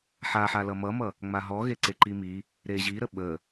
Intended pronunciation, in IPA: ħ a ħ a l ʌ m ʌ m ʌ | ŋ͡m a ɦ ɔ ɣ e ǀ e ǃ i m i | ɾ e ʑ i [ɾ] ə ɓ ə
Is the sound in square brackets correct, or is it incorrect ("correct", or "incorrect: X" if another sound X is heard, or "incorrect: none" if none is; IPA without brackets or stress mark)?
correct